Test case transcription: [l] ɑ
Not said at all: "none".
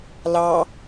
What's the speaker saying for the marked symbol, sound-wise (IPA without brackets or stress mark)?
l